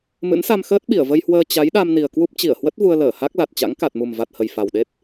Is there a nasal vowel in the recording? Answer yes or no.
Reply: no